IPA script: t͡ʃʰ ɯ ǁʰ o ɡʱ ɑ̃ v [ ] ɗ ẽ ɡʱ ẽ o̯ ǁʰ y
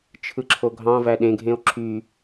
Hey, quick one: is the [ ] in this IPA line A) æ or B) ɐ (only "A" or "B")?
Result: A